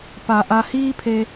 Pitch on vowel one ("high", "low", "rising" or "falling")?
low